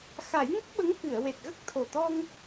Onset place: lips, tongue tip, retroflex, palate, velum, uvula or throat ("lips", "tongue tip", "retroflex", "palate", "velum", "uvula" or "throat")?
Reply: velum